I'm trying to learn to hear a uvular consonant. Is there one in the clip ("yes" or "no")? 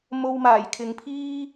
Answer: no